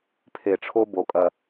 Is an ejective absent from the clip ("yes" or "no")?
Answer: no